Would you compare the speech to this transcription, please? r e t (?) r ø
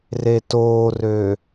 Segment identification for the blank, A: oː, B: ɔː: A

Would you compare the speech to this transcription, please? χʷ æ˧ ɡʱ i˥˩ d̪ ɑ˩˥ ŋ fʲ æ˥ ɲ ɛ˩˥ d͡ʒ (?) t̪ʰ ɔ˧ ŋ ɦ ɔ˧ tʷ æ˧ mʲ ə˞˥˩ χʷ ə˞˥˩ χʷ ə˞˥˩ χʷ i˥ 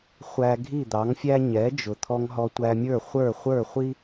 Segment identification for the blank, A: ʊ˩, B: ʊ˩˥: A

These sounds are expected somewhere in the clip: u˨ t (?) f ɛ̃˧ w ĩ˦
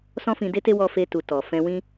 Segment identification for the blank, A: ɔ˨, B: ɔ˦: A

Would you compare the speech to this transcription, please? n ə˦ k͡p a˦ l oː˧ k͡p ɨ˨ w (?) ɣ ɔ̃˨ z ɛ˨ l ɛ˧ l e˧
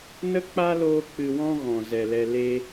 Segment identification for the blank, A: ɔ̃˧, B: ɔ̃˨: A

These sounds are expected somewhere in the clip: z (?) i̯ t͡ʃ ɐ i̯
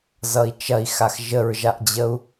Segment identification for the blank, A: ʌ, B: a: A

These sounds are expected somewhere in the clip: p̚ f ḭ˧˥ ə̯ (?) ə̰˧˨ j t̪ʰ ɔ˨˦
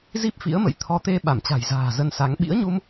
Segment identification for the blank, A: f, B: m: B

